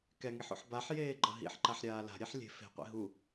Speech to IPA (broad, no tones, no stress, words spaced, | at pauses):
kɛŋiħo̰ħ baħjeːɡ͡ǃʌ ɦḭħǃaħɾʲaː la̤ɾʲɛħ lʲe̤ fe̤qʷḭ ɦu